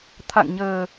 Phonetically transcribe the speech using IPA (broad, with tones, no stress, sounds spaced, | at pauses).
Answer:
t̪ʰ a̰˧˨ ŋ ɲ əː˨˩